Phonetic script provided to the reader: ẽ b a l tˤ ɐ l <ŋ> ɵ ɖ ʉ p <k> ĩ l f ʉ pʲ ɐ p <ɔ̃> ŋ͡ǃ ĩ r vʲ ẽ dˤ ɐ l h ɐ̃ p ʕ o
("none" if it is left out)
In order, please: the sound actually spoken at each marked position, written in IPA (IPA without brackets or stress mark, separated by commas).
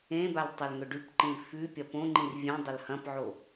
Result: ŋ, ǃ, õ